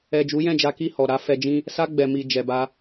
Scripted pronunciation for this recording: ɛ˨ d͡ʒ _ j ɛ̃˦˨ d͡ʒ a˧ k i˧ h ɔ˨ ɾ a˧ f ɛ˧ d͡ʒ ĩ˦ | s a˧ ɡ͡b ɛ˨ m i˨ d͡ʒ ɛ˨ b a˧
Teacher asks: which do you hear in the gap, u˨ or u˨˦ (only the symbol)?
u˨˦